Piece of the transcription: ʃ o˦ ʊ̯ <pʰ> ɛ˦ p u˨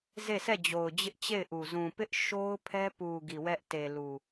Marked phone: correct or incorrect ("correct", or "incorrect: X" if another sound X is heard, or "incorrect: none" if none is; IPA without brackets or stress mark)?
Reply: correct